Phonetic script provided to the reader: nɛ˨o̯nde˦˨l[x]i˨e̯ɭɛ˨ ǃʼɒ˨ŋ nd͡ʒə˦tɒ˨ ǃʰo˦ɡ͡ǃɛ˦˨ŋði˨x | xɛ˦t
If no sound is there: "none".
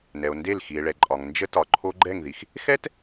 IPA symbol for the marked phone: x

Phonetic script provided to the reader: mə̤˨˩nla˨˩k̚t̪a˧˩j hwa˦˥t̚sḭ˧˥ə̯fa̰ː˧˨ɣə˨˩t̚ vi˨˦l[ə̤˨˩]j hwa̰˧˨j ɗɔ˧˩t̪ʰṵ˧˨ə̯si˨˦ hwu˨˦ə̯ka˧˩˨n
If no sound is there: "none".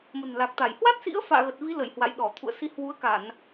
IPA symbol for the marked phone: ə˧˩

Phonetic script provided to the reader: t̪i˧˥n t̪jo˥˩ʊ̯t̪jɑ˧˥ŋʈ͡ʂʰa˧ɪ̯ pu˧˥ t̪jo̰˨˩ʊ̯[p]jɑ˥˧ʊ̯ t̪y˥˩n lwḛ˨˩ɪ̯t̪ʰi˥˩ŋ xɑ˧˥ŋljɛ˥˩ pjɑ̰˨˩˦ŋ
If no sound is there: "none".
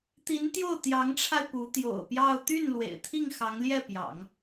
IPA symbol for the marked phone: p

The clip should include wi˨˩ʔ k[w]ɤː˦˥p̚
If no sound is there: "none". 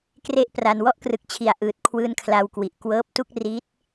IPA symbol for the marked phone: w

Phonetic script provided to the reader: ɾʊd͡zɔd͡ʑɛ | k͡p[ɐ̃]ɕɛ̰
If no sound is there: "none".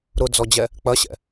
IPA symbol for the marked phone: ɐ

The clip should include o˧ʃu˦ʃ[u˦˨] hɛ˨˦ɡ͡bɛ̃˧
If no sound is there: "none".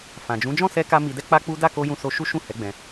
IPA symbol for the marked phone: ũ˦˨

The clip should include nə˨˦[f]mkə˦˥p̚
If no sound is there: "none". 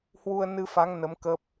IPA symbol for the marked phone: none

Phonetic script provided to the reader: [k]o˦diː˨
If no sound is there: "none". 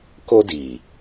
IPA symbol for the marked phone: k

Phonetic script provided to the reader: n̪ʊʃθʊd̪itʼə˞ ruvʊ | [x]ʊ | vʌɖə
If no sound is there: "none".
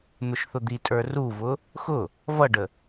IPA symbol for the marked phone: x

